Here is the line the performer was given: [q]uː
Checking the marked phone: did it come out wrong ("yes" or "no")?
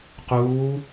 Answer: no